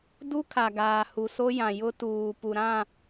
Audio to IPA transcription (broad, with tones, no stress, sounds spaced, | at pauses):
d u˦ kʰ a˨ ɡ aː˨ h u˨ s o˦ j ã˨ j ʊ˦ t uː˨ p u˨ ɾ ã˦˨